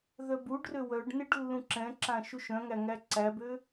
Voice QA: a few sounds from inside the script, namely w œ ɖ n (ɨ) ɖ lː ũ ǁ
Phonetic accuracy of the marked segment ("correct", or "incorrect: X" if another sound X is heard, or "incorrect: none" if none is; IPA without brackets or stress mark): incorrect: ɪ